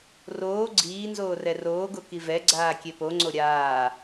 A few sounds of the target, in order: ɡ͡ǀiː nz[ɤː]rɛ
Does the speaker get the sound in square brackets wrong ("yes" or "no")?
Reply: yes